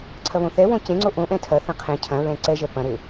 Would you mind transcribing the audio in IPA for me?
ǀʰ ɐ β õ θ ɛ w õ c ẽ ŋ͡ǀ o ʔ õ ʔ ɛ̃ tʰ ɐ θ ɐ̃ qʰ ẽ cʰ ɐ̃ ɹ ɛ̃ ǀ ɛ ʒ ɛ p ɐ̃ ɾ e

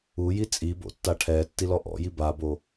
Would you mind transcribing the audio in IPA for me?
u j i t͡sʼ i b o̰ tː a ʈʰ ɛ tː i l ɔ ʔ ɔ̰ j i b a b o

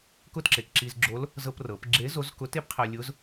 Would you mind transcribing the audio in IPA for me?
k ʊ˥ t ǁ e˩ k ǁ i˧ z ɡ͡ǁ o˧˥ l | z ɤ˧ p r ɤ˩˧ p ɡ͡ǁ e˧˥ z o˧˥ z k ʊ˧˥ t e˥ p qʰ ɜ˧ lʲ ʊ˧˥ z

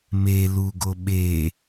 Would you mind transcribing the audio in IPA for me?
m e l u ɡ o ɓ e

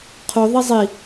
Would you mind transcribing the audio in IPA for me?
qʰ o ðˤ i zˤ i

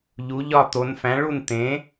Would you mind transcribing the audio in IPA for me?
ʎ u˨˥ ʎ ɒ˥˨ t̪ o˨˥ n f æ̃˨˥ ɭ u˥˨ n t̪ ẽ˨˥

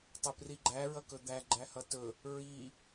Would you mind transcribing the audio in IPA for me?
tˤ ɵ p r i ɡ͡ǃ æ ɹ ʌ k ɵ d̪ æ ɡ͡ǃ æ h ʌ t ɵ | ɹ i

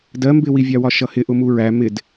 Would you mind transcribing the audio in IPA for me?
d ɜ m b ɪ w i vʲ ɑ w ɒ ʃ ʌ h ɪ ʔ ʊ m u ɹ æ m ɪ d

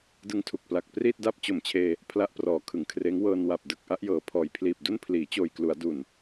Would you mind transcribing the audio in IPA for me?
d ɯ˧ ŋ tʰ u˨˩ k̚ p l a˨˩ k̚ p r iː˥˩ t̚ d a˥˩ p̚ t͡ɕ o˨˩ m t͡ɕʰ eː˧ | pʰ l a˦˥ ʔ p r ɔː˩˦ kʰ ɯ˩˦ ŋ kʰ r eː˦˥ ŋ w ɤː˧ n w a˨˩ p̚ d ɯ˨˩ k̚ ʔ a˥˩ ʔ j ɤː˨˩ pʰ ɔː˨˩ j pʰ l iː˨˩ p̚ d u˥˩ n pʰ l iː˩˦ t͡ɕ oː˨˩ j k l u˩˦ a̯ d u˨˩ n

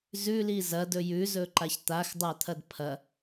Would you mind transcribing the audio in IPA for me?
z ʉ l i z ɐ d ɵ j ʉ z ɵ ǃ a ç t̪ a x dˤ a t̪ʰ ɐ d pʰ ɐ

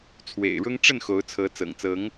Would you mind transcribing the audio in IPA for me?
t͡sʰ w ḛ˨˩ ɪ̯ ɻ ʊ˦ ŋ ʈ͡ʂ ə˥˨ n x o˨˦ ʊ̯ t͡sʰ ɤ˨˦ t͡s ɤ̰˨˩ ŋ t͡s ɤ˨˦ ŋ

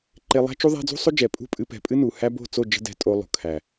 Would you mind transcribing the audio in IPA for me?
ǃ e˧ lˠ æ̤˦ t͡ʃ u˦ ðˤ æ̤˦ d͡z ṳ˦ sˤ o˦ d͡ʒ ɛ˨ pʼ ṳ˦˨ pʼ ɨ˧ p ɛ̤˨ pʼ ɨ˦ n u˨ h æ˧ b o̤˦˨ t͡s o˦˨ d͡ʒ ə̤˦ d ɛ̤˧ tʼ o˧ lˠ o̤˨ kʰ æ˨

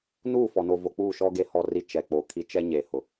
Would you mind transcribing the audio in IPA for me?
n uː˦˨ f ɔ˨ n o˨ v o˨ k͡p uː˦˨ ʃ ɔ˦ ɡ e˦ h ɔ˦˨ r i˦ t͡ʃ ɛ˨ k͡p o˨ kʰ i˦ t͡ʃ ɛ˦ ɲ e˨ h ʊ˨

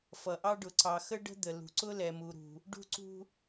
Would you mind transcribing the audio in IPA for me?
f ʌ˨ ʔ ɑ˦ ɖ ʊ˨ ǀ ɑ˨ x ə˦ ɖ ə̤˦ d̪ ə˨ l ṳ˨ ǀ ʊ˦ l ɛ˨ m u˨ ɾ ṳ˨ | ɖ ṳ˦ ǀ ṳ˦

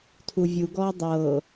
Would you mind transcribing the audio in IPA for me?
tʰ u vʲ u ɡ ɔː dˤ ɤː

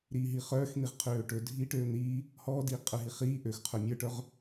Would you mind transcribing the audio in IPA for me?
ɾ iː ɦ i χ œː x n̪ i ʁ qʰ øː ʈ ɵ dʱ iː ʈ øː n̪ iː | h ɔː d iː qʼ ə˞ ɦ i χ iː ʔ ø x qʰ œ mʲ ə˞ ʈ œ ʁ

